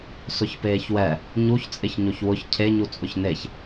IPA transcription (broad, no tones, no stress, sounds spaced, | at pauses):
s ʊ ç p eː ç w ɛ | ɲ u ç t͡sʼ ɪ ç ɲ o ç w ʊ ç cʰ e ɲ u t͡sʼ ʊ ç n e ç